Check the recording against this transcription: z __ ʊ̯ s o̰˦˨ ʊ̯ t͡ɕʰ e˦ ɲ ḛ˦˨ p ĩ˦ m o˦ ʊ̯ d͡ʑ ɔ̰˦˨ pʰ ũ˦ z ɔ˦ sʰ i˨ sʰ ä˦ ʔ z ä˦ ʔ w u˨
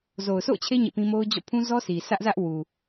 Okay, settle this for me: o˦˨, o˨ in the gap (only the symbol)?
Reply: o˨